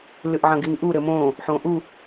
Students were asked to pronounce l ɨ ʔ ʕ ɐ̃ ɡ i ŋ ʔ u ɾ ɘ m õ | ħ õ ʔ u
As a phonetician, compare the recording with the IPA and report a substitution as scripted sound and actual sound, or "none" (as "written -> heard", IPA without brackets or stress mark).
none